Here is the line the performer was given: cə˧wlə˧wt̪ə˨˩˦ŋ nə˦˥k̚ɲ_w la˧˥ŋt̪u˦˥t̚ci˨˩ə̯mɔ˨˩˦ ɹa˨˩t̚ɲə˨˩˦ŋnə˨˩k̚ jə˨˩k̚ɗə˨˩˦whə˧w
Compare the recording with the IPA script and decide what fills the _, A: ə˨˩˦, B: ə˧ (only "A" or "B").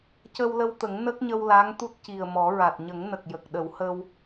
B